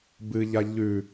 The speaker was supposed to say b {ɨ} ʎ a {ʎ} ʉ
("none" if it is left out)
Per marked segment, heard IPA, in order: ɨ, ʎ

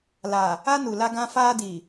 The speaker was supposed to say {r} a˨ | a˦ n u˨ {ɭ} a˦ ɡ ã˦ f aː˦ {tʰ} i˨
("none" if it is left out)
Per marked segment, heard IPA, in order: l, l, d

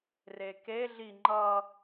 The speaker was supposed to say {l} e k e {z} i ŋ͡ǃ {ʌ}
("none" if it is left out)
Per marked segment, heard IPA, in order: r, ɮ, ʌ

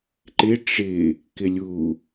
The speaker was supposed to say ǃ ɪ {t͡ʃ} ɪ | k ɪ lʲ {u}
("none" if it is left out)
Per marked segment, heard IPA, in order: ʈ͡ʂ, u

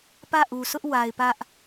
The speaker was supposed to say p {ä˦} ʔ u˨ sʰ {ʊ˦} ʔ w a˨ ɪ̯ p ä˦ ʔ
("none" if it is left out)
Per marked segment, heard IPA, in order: ä˦˨, ʊ˦

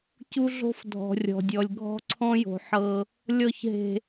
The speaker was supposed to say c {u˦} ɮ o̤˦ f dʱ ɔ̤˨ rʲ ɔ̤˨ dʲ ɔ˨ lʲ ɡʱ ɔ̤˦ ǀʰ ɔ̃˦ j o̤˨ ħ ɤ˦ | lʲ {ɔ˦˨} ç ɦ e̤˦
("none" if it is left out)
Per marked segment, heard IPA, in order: u˦, ɔ˦˨

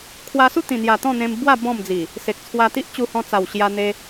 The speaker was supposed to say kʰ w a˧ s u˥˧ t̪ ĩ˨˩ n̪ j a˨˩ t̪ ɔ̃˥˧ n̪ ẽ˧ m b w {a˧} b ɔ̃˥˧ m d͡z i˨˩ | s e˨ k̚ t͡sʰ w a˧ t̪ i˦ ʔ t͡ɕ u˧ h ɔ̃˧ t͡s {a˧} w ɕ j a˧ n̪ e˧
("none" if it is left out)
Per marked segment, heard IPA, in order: a˥˧, a˨˩

